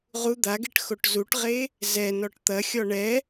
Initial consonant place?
uvular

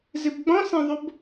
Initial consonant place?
alveolar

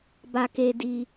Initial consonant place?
labial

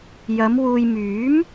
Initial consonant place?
palatal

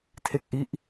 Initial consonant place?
alveolar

